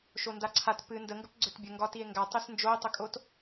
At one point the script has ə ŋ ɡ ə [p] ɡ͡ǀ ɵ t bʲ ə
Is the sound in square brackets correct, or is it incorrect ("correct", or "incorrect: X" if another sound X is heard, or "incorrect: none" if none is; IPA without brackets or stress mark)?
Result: correct